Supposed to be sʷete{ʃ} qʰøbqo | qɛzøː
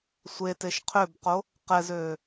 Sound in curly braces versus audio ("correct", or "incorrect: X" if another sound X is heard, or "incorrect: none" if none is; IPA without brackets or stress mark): correct